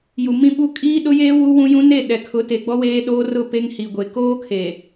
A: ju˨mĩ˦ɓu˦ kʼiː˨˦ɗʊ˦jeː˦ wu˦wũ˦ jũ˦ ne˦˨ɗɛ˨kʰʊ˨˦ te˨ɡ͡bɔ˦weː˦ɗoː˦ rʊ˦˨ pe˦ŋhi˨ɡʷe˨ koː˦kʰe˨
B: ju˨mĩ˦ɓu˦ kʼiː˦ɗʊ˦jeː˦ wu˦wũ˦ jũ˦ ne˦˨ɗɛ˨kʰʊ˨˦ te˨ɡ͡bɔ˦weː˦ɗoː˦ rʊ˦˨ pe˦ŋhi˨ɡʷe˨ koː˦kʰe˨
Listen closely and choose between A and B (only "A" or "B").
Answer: B